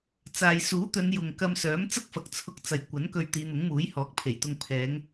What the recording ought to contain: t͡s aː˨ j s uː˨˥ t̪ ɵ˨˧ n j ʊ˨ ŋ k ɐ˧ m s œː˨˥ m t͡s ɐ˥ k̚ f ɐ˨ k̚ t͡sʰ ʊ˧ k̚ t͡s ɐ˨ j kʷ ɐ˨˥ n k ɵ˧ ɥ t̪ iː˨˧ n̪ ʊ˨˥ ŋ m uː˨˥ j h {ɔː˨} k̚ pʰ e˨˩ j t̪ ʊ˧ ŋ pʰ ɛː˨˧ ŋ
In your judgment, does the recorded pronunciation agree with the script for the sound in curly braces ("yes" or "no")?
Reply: no